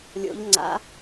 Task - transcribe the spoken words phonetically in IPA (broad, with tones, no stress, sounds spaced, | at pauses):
lʲ o̰˦˥ ʎ ŋ͡ǀ a̰˦˥